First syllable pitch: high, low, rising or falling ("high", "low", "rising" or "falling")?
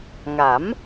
rising